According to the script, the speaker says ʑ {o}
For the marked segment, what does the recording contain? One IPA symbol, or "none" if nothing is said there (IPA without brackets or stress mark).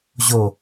o